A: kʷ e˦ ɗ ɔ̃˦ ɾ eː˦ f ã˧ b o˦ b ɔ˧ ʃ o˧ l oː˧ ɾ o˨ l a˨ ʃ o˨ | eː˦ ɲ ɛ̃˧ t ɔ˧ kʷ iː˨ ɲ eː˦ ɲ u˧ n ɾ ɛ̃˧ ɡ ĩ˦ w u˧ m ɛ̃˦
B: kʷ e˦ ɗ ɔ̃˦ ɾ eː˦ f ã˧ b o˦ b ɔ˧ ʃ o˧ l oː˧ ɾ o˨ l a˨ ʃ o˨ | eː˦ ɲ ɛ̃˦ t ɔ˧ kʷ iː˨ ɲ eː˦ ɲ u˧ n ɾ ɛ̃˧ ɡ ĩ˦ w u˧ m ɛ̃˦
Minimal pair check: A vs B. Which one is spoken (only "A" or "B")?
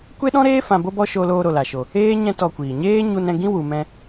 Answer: B